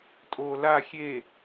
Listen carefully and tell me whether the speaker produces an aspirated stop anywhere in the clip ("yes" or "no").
no